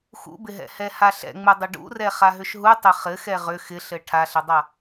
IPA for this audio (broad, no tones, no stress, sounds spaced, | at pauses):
x ṵ b ɪ ɦ ɛ̰ h ɛ h a ɬ ɛ̰ ŋ͡m u dˤ ɘ ɖ ṵ r ɛ χ a ɦ ʏ ʃ ɦ u tˤ ɘ χ ɘ x ɛ ʁ ʏ x ɪ ɬ ɘ ʈʰ a ɬ ɘ dˤ a